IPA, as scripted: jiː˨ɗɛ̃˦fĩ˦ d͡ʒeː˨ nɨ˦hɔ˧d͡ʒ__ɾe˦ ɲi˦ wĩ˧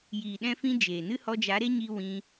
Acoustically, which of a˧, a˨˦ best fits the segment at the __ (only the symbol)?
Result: a˨˦